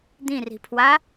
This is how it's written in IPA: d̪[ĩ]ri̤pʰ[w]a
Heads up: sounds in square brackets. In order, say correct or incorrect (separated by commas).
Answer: correct, correct